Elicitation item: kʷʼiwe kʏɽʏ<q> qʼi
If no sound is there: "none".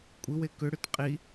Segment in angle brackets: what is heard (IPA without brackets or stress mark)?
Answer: t